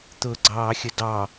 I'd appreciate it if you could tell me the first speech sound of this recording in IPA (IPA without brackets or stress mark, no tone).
t̪